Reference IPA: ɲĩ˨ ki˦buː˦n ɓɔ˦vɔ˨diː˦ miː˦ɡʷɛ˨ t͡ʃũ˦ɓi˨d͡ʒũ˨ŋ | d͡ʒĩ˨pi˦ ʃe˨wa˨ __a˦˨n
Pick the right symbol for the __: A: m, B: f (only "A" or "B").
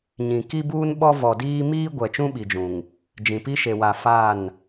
B